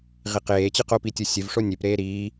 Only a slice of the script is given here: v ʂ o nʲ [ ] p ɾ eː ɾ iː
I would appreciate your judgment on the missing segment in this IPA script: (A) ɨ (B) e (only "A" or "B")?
B